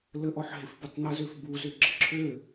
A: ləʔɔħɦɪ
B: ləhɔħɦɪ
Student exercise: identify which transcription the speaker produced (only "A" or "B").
A